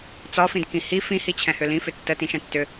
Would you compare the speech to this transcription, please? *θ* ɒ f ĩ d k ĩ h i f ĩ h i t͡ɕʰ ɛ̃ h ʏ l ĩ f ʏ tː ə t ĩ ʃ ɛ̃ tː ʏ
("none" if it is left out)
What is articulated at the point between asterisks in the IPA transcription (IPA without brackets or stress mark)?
t͡s